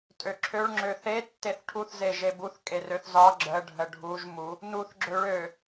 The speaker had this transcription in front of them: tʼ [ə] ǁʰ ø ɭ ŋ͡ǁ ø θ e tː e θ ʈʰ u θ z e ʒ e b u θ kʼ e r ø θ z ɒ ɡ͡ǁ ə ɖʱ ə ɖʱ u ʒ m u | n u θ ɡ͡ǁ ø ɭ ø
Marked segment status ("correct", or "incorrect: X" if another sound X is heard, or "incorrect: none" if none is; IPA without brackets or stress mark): incorrect: ø